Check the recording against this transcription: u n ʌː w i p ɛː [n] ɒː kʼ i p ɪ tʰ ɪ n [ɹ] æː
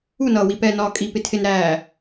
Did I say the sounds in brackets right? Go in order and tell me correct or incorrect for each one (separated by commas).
correct, incorrect